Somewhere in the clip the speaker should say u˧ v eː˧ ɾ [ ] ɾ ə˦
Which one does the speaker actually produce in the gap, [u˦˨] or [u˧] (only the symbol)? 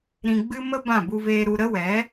u˧